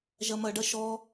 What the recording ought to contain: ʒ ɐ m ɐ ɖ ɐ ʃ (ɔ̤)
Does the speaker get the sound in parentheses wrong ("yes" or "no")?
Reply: yes